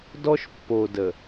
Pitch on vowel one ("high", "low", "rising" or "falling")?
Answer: high